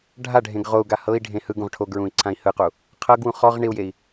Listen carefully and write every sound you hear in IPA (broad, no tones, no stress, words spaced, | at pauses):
ɖʱaɖʱẽɡ ʁou̯ɡa hɤi̯ɖʱẽ hɯ ɡũʁʈʰoɡɹũi̯ ǀʰãi̯hɯqu | qʰɤɡwũ χɔʁ ɳiu̯jei̯